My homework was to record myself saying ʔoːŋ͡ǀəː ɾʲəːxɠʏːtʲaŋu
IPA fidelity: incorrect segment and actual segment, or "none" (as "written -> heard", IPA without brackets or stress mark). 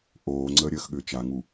tʲ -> t͡ʃ